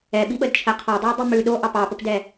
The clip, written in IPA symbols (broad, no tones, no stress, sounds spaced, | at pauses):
ɛ ɓ i ɓ ə d t͡ʃʰ ɛ qʰ ɑ dˤ ʉ i̯ dˤ i m ʉ ɗ o ʔ ɑ p ɑ p ə p d ɛ